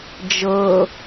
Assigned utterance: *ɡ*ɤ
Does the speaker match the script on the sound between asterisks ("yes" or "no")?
no